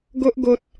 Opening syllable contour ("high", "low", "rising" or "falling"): high